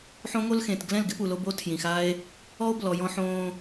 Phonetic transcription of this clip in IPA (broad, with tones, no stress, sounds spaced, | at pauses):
ħ õ˦ ŋ o˦ l x ẽ˨ t ɡ l ɛ̃˦˨ l ɡ ɪ˦ p u˨ l o˧ b o˦ tʰ j ĩ˨ x a˦ e̯ | ɔ˦ o̯ b l ɔ˨ j ɔ̃˧ ħ õː˧